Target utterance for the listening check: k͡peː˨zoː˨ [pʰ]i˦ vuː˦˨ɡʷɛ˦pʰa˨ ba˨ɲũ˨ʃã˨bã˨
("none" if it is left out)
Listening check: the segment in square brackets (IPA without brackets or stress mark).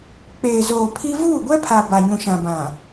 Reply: pʰ